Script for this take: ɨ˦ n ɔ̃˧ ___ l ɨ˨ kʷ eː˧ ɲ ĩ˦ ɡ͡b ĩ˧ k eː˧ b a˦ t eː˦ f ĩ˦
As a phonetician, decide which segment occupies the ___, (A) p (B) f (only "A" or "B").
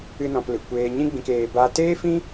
A